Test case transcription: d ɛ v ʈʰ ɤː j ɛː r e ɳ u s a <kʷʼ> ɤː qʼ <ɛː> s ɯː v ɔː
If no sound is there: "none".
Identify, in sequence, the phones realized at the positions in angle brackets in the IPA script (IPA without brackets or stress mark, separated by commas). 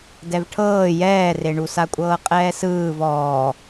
kʷʼ, ɛː